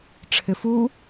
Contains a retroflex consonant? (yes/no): yes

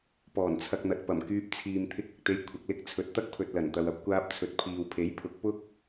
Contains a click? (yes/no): no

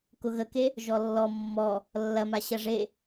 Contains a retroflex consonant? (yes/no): yes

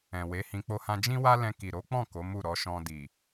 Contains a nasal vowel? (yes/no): yes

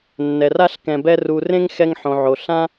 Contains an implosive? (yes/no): no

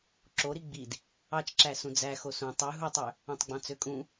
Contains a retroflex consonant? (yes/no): no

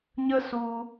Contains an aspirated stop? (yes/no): no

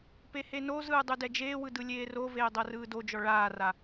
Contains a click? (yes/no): no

